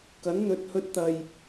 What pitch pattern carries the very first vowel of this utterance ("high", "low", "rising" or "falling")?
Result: rising